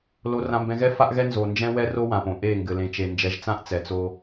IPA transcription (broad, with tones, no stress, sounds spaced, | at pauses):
l o˨ r ã˨ m b ɛ̃˨ ɣ ɛ˦ f a˦ ʔ ɣ ɛ˦ n z o˨ n d͡ʒ ɛ̃˦ w ɛ˦ r o˦ w ã˨ p õ˨ ʔ e˦˨ ŋ ɡ ɘ˨ l ẽ˨ t͡ʃ e˨ n d͡ʒ ɛ˨˦ ʒ t͡s ã˦ ʔ t͡s ɛ˨ t͡s o˦